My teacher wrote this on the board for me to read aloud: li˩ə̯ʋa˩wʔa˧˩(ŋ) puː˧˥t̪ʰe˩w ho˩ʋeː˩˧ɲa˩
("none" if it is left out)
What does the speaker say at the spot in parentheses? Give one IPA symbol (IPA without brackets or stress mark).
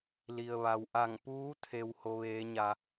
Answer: ŋ